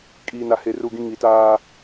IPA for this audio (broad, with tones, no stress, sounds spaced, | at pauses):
kʼ iː˨ n a˨˦ h e˨ r u˦˨ ɡ ĩ˦ ŋ i˨ t aː˦